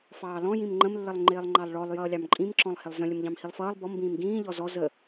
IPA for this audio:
f ɑː l ɔ̃ j ĩ m ŋ͡ǃ ə̃ m lː ə lˠ ŋ͡ǃ ɪː lˠ ŋ͡ǃ ɑ lˠ ɭ ɔ lˠ j ʌː lʲ ɑ m ǃʼ ĩ m ǁ ɔ̃ lˠ h ɪ lˠ z ə̃ lʲ ə m ʎ ɑ̃ m h i lˠ f ʌː lˠ b ɔ m b ĩː m ɡ ĩː ʎ ɔ z ɔ z ə

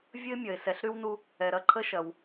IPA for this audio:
vʲ ə˥ ɪ̯ mʲ ɐ˩ ɪ̯ s ɛ˨ ɬ ɾ y˥ w n u˦ | ɛ˩ ɾ ɐ˥ ǃʰ ə˦ ʃ ɐ˩ w

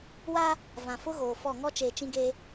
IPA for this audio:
w aː˦ | v ã˨ f ʊ˦ ɣ oː˨ f ɔ˦˨ ŋ ɔ˦ t͡ʃ eː˨ t͡ʃ ĩ˦ ɡ eː˦

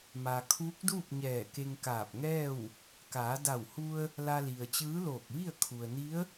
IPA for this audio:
m a˩ kʰ uː˧˥ k̚ d uː˥˨ p̚ ɲ ɛː˧˩ k e˧ ŋ k aː˧˩ p̚ ŋ ɛː˥˨ w | k aː˩˧ d a˧˩ w h u˧ ə̯ | l a˧ l i˩ ə̯ t͡ɕ ɯː˧˥ l oː˧˩ k̚ ʋ i˥˨ ə̯ kʰ u˩ ə̯ n i˧˥ ə̯

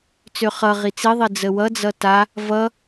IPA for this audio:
t͡s ø χ ʌ ʁ i t͡s i ðˤ i d͡z ə w ʌ d͡z ʌ t a | v ʌ

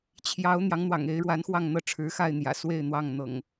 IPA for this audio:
t͡ɕʰ j ɑ˨˦ ʊ̯ n̪ j ɑ˨˦ ŋ n̪ w ɑ̰˨˩ ŋ e˨˦ ɪ̯ ɻ w a˨˦ n x w ɑ˥˨ ŋ n̪ ɤ˥˨ ʈ͡ʂʰ ɻ̩˨˦ x a˥˨ ɪ̯ n̪ j ä̰˨˩ s w e˥˨ ɪ̯ n̪ w ɑ˥˨ ŋ n̪ ɤ̰˨˩ ŋ

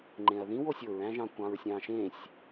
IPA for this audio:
ŋ͡ǃ ẽ ɐ̯ ð ĩ w o sʲ o ɹ æ̃ ʒ ɑ̃ kʷ ɑ̃ ɹ sʲ ɑ̃ ʃ ẽ sʲ

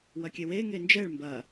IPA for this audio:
w ɐ kʲ ɛ w e ŋ e n d͡ʒ ɛ ɭ m b ɐ

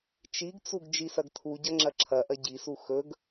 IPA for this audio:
t͡ʃ i ɡ t͡s u ɡ d͡ʒ i s ɐ ɡ tʰ u ɟ ɐ ŋ͡ǁ ɐ ǁʰ ɐ ʔ ɐ ɟ i s u x ɵ ɡ

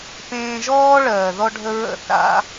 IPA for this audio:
p ẽː˧ ʒ ɔː˦ ɭ ɜː˨ ð ɔ˧ ɖʱ ə˧ ɹ ə̰˦ θ a̰˦

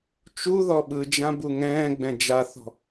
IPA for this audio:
t͡ʃ u ð ɔ ɓ ɯ d͡ʒ ã b u ŋ ɛ̃ː ɡ͡b ɛ̃ d͡ʒ a θ ɔ̤

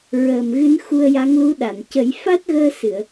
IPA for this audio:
ɹ əː˨˩ m ɣ ɨ˧˥ n x u˧ ə̯ j a˧˥ ŋ l u˧˥ ɗ a˨˩˨ n c ə˨˩˦ j f a˦˥ t̚ ɣ əː˧ s ɨ˨˩˨ ə̯

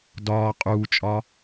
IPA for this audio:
d ɒː qʼ uː t͡ʃʼ ɒ

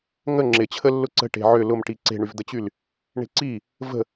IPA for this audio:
ŋ ə ŋ͡ǁ ɪ t͡ɕʰ ə lː ʊ ǀ ə̤ ʈ e̤ ʕ ʏ l ʊ m ʈ i ǀ e̤ ɳ y v d̪ ə t͡ɕ y l | ɳ e̤ ǀ i | v ə̤

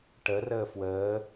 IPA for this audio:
ʈ ə r əː f w əː

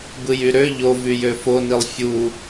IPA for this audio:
b ɯ j y ɾ ø ʎ o v y j ø f o n i lˠ fʲ u

